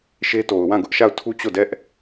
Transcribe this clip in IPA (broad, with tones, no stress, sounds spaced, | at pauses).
ʃ e˦ t o˨ ʊ̯ w ã˦˨ ɡ ʊ˦ ʔ ʃ a˦˨ ʊ̯ tʰ u˦ t͡ɕ o˦˨ d ɛ˦ ʔ